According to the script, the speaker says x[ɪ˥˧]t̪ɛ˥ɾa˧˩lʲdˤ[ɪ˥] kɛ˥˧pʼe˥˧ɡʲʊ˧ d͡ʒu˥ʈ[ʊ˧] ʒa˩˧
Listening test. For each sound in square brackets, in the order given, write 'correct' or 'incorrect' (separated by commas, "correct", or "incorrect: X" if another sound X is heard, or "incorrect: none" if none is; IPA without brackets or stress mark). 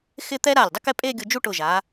correct, correct, incorrect: ʊ˧˩